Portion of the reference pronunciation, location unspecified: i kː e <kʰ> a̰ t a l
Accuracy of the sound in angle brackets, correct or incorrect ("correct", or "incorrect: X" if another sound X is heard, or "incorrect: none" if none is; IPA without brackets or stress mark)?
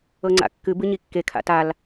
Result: correct